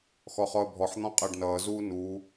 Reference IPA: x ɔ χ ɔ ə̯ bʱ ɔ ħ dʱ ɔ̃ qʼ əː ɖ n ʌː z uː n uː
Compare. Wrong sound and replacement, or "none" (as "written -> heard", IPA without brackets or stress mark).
dʱ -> n̪